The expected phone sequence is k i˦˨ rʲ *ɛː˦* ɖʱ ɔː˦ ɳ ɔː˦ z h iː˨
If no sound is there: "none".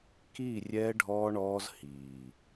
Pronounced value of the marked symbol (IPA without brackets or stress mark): ɛː˦